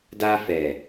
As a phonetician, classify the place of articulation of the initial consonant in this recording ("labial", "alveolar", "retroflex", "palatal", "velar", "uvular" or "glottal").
alveolar